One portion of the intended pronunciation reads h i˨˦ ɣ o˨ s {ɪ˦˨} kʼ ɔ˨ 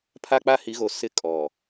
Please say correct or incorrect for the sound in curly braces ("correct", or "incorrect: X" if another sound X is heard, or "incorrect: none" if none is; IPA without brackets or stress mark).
incorrect: ɪ˦